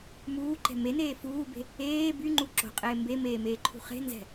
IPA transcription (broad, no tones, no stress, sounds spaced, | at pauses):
m uː ǃ ɛ̤ m e n eː f uː b e̤ | eː b y ŋ͡ǃ u ǁ o̤ qʼ eː m b e m eː m eː ǃʰ ṳ χ e̤ n z ɛ̤